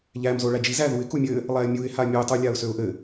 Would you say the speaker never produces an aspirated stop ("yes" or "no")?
yes